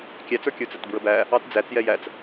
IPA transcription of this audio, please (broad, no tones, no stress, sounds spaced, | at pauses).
kʲ æ t͡s ə˞ kʲ ə˞ t͡s æ t b ɹ ə b æ | ɑ t d͡z æ t͡s j ɛ j æ t͡s